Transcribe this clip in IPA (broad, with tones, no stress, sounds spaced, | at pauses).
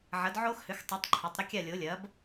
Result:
ʕ ɐ˩˥ d ʕ o˦ x h ʏ˩˥ x tˤ ʉ˩˥ tˤ ǃʰ a˩˧ tˤ ɾ ʏ˦ kʲ a˥˩ lʲ o˩˥ lʲ ɐ˩˥ b